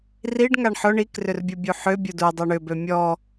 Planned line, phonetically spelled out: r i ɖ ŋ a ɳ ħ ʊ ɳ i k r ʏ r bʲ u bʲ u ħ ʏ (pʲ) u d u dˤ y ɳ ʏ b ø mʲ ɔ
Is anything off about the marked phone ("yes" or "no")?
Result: yes